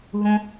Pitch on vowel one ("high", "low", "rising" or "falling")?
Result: low